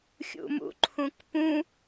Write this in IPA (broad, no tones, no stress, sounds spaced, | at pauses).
xʲ ṵ m ṵ ǃʰ ũ k p ũ